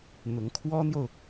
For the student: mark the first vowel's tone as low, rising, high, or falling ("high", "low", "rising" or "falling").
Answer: rising